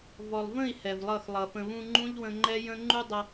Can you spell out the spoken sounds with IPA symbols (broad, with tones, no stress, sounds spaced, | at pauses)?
v ɔ˨ lˠ v ə̃˦˨ i̯ h ɛ˨ v lˠ ʌ˦˨ x lˠ ʌ˨ f ə̃˨ β ũ˧ ŋ͡ǃ ũ˦ ʎ w ə̃˧ ŋ͡ǃ ɛ˦ j ə̃˦ ŋ͡ǃ u˦ dˤ ʌ˧